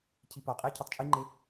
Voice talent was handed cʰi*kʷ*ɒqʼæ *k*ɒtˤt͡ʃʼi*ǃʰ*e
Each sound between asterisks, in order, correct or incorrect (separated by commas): incorrect, incorrect, incorrect